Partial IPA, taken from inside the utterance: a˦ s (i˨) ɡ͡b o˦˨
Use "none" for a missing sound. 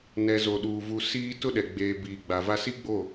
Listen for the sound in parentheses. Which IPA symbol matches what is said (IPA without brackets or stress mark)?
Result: i˦